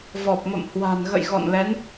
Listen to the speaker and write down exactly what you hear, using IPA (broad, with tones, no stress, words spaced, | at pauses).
vɔ˨˩p̚mə̰˧˨m hwa̤˨˩nɣə̰˧˨jɣɔ̰˧˨nlɛ˨˦n